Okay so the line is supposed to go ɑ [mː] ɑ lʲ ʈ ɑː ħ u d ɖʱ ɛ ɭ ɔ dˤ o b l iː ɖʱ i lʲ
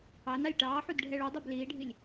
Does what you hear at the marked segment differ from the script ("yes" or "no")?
yes